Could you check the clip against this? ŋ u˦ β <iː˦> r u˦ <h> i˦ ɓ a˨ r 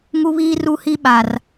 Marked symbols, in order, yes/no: yes, yes

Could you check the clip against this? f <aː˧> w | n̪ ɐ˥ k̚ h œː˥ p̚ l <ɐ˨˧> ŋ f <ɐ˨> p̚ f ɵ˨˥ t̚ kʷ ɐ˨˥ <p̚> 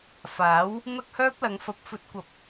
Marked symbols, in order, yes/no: no, yes, no, yes

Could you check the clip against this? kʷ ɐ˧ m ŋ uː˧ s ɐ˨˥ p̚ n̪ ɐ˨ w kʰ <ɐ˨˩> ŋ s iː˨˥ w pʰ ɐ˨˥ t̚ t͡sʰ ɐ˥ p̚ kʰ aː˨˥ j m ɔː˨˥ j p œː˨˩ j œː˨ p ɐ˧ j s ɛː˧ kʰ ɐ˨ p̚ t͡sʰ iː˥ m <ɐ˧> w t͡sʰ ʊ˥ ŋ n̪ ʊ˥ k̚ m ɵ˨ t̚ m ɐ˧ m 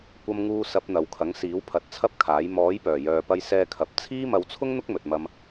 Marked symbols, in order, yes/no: no, yes

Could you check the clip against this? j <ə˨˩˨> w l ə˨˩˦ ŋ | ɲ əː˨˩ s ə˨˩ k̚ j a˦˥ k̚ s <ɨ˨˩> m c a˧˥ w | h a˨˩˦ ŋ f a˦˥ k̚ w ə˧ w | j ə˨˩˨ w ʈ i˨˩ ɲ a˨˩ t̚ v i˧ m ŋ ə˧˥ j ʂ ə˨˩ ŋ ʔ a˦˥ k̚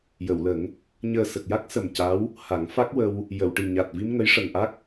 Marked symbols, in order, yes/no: yes, no

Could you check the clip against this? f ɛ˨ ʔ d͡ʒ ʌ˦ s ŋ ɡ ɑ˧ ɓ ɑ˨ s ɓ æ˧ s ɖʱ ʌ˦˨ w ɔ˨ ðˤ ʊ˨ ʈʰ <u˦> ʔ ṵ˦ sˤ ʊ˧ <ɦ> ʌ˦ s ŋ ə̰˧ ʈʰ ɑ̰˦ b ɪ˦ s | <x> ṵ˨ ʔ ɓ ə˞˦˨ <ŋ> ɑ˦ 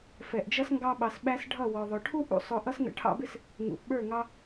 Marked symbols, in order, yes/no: yes, no, no, yes

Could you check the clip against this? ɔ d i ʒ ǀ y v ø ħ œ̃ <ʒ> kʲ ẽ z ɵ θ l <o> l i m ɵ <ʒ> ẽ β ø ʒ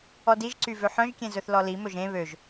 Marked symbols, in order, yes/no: yes, no, yes

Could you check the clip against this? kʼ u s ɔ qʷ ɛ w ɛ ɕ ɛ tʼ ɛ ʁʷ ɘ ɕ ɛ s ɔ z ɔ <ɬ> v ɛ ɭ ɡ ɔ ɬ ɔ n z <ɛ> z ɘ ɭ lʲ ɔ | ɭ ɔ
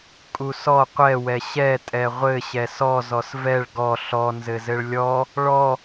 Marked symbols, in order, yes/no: no, no

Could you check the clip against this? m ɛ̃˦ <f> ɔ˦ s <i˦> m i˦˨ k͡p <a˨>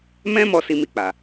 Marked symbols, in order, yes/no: no, yes, yes

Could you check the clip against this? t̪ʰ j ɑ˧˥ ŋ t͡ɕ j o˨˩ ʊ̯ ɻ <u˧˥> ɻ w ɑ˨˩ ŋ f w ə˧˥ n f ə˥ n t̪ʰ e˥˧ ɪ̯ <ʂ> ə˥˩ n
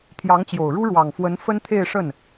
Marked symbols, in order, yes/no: no, yes

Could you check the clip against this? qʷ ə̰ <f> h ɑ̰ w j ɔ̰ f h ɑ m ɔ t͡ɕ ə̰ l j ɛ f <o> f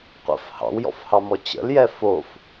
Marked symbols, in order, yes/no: yes, yes

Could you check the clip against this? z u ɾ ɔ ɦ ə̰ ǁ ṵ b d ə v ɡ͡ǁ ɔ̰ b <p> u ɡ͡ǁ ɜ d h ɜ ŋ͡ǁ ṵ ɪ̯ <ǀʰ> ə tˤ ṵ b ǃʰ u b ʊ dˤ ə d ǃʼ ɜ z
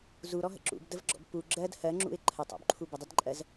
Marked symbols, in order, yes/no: yes, no

